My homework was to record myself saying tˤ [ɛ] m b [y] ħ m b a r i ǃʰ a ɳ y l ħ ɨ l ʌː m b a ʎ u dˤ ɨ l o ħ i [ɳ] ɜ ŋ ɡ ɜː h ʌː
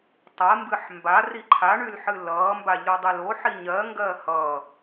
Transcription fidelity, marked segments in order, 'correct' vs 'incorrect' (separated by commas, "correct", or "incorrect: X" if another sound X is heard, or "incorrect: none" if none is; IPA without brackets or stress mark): incorrect: ɜ, incorrect: ɨ, incorrect: ɲ